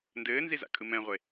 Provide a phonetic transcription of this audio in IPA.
n d ɘː n z i z a̰ kʼ ɯ m ɛ̃ ʁʷ e

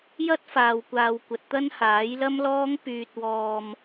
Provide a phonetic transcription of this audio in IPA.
j ɐ˥ t̚ f aː˨ w kʷ aː˨ w kʷ ɐ˨ t̚ t̪ ɐ˥ n h aː˨˥ j l ɐ˥ m l ɔː˥ ŋ p yː˧ t̚ w ɔː˧ m

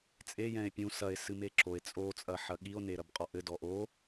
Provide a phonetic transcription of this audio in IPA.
t͡sʼ e j ɛ̃ e̯ pʲ ũ s ɐ e̯ s ɨ m e ǁ o e̯ t͡sʼ o t͡sʼ ɐ ħ ɐ ɠ i o̯ n e ɾ ɐ b qʼ ɔ ʔ ɘ d ɔ ʔ o

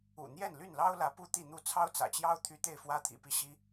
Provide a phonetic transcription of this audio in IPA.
ṵ˨˩ n̪ j ɛ˥˨ n l y˥˨ n l ɑ˦ ʊ̯ l ä˨˦ p u˥˨ t̪ i˥˨ n̪ u˥˨ t͡sʰ ɑ˦ ʊ̯ t͡s ä̰˨˩ t͡ɕ j ɑ˦ ʊ̯ t̪ʰ y˦ t̪ e˥˨ ɪ̯ f w ä˦ t̪ʰ ḭ˨˩ p i˥˨ ɕ i˦

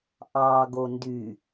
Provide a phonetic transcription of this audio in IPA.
ʔ ɑ ɡ o n d y

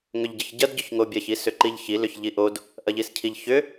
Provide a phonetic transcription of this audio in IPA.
ŋ ʏ ʎ ɟ ə ç ɟ ɐ d ɟ ʏ ç ŋ o bʲ ɐ ç i s ʏ ǃ i ʎ ç i l ʏ ç ʎ i ʔ o d | ʔ ɐ ʎ i s cʰ i ʎ ç ʏ

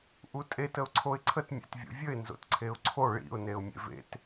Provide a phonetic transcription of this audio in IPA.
ʔ u tʼ e t ə ʊ̯ ǀʰ o ɪ̯ ǀʰ ə t mʲ ḛ t vʲ o̰ vʲ ə ɪ̯ n z o̰ t ǀʰ e ʊ̯ ǀʰ o ɭ ḭ ʊ̯ n e ʊ̯ mʲ ḛ v ḛ t

